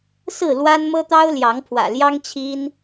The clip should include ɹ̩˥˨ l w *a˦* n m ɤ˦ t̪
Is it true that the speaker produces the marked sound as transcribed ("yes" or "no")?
yes